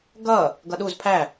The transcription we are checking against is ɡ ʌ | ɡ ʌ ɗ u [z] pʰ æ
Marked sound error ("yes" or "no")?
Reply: no